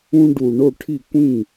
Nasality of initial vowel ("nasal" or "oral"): nasal